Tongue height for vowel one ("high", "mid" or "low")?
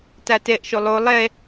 low